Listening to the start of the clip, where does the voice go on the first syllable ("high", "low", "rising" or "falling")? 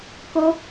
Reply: high